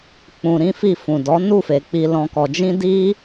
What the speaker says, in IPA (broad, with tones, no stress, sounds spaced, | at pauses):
k͡p ũ˧ ɾ ĩ˦ f i˦˨ f ũ˨ d ɔ˨˦ n u˦˨ f e˨ k͡p i˧ l ɔ̃˧ k ɔ˧ d͡ʒ ĩ˦ d i˦